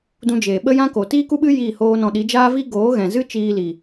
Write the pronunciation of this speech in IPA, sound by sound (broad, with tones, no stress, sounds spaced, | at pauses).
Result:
d ũ˧ d͡ʒ eː˨ ɓ ə˦ j ã˦ k o˨ t iː˦ k u˦ ɓ ɨ˦ j iː˦˨ h oː˦ n ɔ̃˧ ɗ i˨˦ d͡ʒ aː˦ v iː˦ ɡ oː˨˦ ɣ ɛ̃˨ z ɨ˦ t͡ʃ iː˧ l i˨